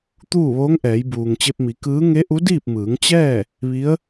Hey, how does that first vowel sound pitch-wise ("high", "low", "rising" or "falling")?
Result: falling